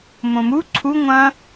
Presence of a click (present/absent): present